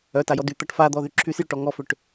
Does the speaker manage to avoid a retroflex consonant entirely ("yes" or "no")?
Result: no